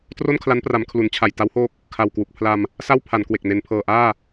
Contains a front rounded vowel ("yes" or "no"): no